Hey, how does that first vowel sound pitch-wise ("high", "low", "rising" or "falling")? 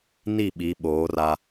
falling